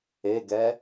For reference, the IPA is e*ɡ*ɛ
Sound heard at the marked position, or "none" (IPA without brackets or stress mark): ɡ